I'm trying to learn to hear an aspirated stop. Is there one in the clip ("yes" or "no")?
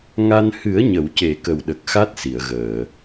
no